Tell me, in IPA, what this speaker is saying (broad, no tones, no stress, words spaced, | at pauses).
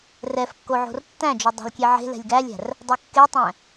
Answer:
rɛfkːo ʕo̤rtːæ̃d͡ʒo dˤæ̤lkʲeʕe̤lɛ̤lʲ ɡælʲæ̤r | dˤokːetˤæ̃